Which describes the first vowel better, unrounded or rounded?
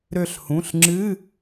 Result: rounded